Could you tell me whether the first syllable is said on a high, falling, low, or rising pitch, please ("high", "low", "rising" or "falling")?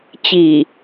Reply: low